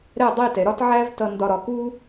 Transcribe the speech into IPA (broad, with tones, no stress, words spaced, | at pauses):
ɾɛ˥˧dˤi˥˧ tɛ˩˧ɾɒ˥tʕæ˥v tʌ˧ ndɒ˧ɾɒ˩˧ku˥